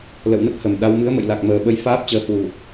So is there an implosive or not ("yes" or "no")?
yes